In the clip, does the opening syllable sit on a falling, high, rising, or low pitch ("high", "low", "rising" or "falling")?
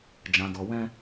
low